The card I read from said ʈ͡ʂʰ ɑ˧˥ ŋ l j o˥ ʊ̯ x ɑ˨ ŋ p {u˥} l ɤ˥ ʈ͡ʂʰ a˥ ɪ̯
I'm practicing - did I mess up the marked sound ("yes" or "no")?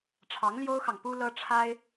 no